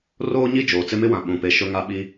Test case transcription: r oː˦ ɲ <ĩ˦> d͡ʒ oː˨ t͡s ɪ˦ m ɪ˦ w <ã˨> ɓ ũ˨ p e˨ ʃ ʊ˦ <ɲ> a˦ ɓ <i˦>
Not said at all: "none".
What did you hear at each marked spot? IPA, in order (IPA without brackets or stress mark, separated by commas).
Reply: i˦, ã˨, ŋ, i˦